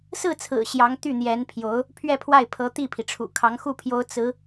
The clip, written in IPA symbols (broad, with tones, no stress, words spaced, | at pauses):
sɹ̩˥˩t͡sʰɹ̩˨˩ ɕjɑ˧˥ŋt̪y˥˩n̪jɛ˧˥npʰjo˧˥ʊ̯ | pʰɥɛ˥˧pʰwa˥˩ɪ̯ pʰɤ˧˥ t̪i˥˩pʰi˩ʈ͡ʂʰṵ˨˩ kʰɑ˧˥ŋxu˥˩pʰjo˧˥ʊ̯ t͡sɹ̩˧˥